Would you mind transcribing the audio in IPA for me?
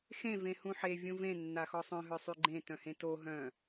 x ẽ v ẽ h ũ ħ e vʲ ũ v ẽ nː a x ɔ sˤ œ̃ ɦ œ sˤ y ɡ͡ǃ ẽ t œ̃ h ẽ t o ɦ œ̃

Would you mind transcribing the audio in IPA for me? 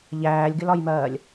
ʎ æː lʲ ɡ ɪ l ɒ j m ɜː lʲ

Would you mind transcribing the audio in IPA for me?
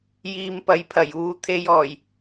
j iː˨ m p ɐ˨˧ j pʰ ɐ˨˩ j uː˨ t̪ʰ e˧ j ɔː˨˩ j

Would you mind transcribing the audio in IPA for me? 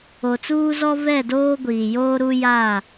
o˨ t͡s uː˦ z ɔ˦ v ɛ˦˨ d oː˦ ɡʷ iː˨ j oː˦ ɾ u˦ j a˦˨

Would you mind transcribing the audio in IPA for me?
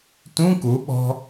t ũ k u ɓ ɔ̤

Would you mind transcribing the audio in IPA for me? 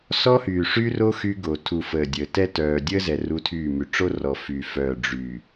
s ɔ˦ h yː˨ ʂ yː˦ r o˦ x y˦ ɡ o˨ tʰ u˨ f əː˨ dʲ əː˨ t ɛ˦ t œː˨ dʲ əː˦ z ɛ˨ r u˦ tʰ yː˦˨ m y˨ ʈ͡ʂ o˦ r ɔ˨ f yː˨ f œː˨ ɖ͡ʐ y˨

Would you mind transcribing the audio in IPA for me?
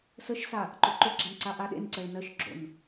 s ə ʃ s a | ǃ o ǃ o ɡ͡ǁ a n ǀ a ʔ a ɗ ḛ n ǀ ɜ ɭ n ɜ ʃ ɡ͡ǁ o̰ n

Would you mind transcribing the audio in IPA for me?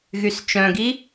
ɣ y s t͡ʃ œ̃ ɡ i

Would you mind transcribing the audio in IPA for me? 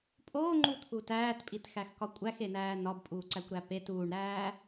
pʼ oː ŋ͡ǃ u t̪ʰ u t æː t pʼ i t x æ x k ɒ kʷʼ æ x e n æː n ɒ b pʼ uː ǀ æ kʷ ɾ æ p e t uː ɳ ɾ æː

